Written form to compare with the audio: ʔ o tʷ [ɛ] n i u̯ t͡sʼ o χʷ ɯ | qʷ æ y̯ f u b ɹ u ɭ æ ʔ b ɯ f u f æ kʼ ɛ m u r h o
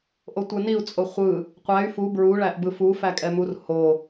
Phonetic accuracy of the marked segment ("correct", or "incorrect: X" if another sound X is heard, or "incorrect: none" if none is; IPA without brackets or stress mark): correct